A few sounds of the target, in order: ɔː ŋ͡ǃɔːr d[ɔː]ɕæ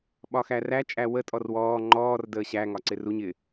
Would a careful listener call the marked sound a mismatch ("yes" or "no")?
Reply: yes